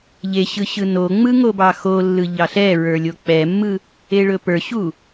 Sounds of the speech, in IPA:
ʎ e ɕ ɯ ɕ ɯ n o ŋ͡m ɯ ŋ o b ɑ x o lː ɯ ʎ ɑ ɬ ɛ ɹ ə˞ lʲ o k͡p ɛ mː ɯ | e ɭ ɵ p ə˞ ɕ u

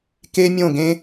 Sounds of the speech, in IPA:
k e˦ mʲ õ˦˨ ɡ ẽ˦

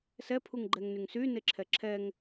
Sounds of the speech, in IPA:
s ɛ pʰ u ŋ ɡ͡ǃ ɛ ŋ n y ŋ s y n e ǁʰ ɛ ǁʰ ɛ ŋ

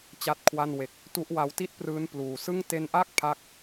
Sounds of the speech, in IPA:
t͡ɕ a˥˩ t̚ kʰ w a˥˩ n w e˦˥ k̚ | t u˦˥ ʔ w a˦˥ w t i˥˩ t̚ p r ɯː˦˥ n p l uː˨˩ s ɯ˥˩ ŋ t e˧ n ʔ a˥˩ k̚ pʰ a˦˥ k̚

